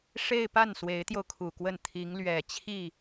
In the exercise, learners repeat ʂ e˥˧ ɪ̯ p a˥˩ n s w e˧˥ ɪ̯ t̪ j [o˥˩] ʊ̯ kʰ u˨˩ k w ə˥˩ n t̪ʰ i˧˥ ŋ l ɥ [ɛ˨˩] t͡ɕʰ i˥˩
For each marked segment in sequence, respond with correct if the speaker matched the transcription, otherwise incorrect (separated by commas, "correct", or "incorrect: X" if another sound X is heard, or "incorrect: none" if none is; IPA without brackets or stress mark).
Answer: incorrect: o˧, correct